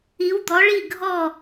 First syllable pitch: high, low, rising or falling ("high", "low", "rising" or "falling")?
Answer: rising